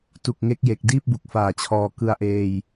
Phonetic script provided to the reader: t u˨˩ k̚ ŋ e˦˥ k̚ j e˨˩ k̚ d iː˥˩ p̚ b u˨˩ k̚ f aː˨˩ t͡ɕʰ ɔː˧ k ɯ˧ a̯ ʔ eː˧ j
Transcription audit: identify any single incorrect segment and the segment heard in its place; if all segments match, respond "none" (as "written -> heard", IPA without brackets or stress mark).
none